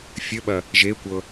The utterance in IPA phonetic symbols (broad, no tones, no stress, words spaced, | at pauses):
fʲəɓɐ | ʒekʷɤ